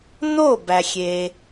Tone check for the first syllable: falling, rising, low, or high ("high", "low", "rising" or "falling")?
falling